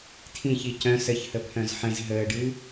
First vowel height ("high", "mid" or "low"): high